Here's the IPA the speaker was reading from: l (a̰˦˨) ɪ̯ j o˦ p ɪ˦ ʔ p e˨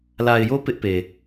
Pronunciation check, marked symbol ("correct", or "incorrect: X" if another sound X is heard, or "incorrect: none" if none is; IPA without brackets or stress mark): incorrect: a˨